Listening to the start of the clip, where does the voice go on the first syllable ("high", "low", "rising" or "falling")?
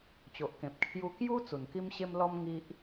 low